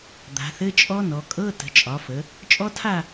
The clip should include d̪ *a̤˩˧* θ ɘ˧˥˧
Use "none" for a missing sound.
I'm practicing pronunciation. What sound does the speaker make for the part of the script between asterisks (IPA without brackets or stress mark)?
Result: a̤˩˧